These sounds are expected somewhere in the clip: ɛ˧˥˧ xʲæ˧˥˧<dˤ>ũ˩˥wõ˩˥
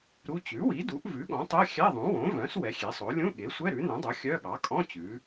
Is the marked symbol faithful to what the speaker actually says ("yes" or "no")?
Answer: no